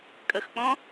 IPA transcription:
kʼəxk͡pɔ̃

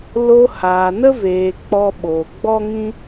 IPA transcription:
lo˧haː˨nə˦veː˨ k͡pɔ˧ɓoː˨ ɡ͡bɔ˦ŋĩ˦

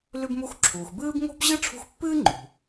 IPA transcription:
lʉ˦bmu˦xǁʰuː˨x bɨː˥b ŋo̤˥bʑɨ˥ʈ͡ʂʰṳ˦xpːɨː˥ ŋ͡ǃṳ˩

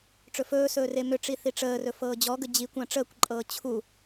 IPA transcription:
ʈ͡ʂɵfɵːsɵː remʏʈ͡ʂi θiʈ͡ʂəːrɵ fɤːd͡ʑɔɡə d͡ʑi kʷãʈ͡ʂəːkʷǃʼɤː t͡ɕʰu

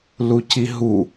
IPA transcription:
luciɦu

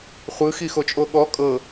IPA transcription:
χʷɯxixot͡ʃʼo ɠɔ kʼɤ

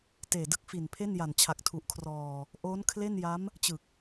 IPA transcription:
teː˨˩dɯ˦˥k̚fi˨˩npʰe˥˩n ja˨˩nt͡ɕʰa˨˩k̚tʰu˨˩ʔkʰrɔː˨˩ | ʔoː˦˥nkʰle˥˩nja˦˥m | t͡ɕɯ˨˩k̚

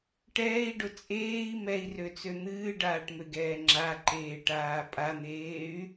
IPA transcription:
ʈɛːi̯ɖʊ t͡sʼeːi̯ mɛi̯røt͡sø n̪ɨːɖaːʈmøɡɛː ŋ͡ǁaǃeːʈaː pʼan̪eːy̯

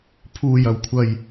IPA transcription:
pʰuː˨˩jɐ˨˩wkʷʰɐ˨˩j

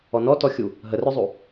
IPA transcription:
ɔnɔ tɔxʲu | ɦərœzˤu

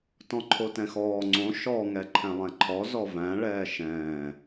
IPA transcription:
tɔ̃ǃʰotɛ̃xɔː ŋ͡ǀõ ʃɔ ŋɛǃʰɛ̃lˠɛ̃ǃʰɔ zɔvæ̃ ɭɛːʃɛ̃ː

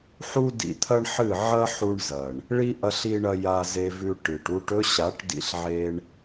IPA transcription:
ħu˦dḭ˧t̪ʰɐ˦ɳħɨ˦˨ ʕɐ˦ħu˧ɳzɐ˨ɳ | ɭi˦ ʔɐ˦ɬi˦ɳɐ˦ ja˧ze˧vʉ˧ ʈɨ˨ʈu˦ʈ ɵ˦ɕa˨˦ʈdḭ˧ɬʕe˧ɳ

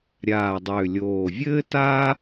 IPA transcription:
ɾʲaː˨˩dˤʏː˨˩lʲoː˨˩vʲɘː˥ taː˥

